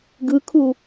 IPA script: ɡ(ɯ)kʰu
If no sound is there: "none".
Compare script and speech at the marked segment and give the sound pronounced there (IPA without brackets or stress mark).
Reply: ɯ